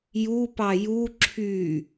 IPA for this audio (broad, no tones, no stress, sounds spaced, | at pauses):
j u p ɑ j u ǁʰ y